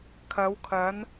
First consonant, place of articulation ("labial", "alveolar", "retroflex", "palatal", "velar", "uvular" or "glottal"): velar